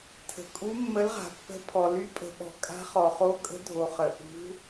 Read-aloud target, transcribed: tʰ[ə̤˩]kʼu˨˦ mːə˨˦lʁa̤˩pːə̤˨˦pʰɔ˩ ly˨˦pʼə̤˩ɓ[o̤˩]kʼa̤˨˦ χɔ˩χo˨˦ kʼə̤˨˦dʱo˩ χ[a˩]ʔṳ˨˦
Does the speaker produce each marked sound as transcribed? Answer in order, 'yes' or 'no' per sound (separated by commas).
yes, no, no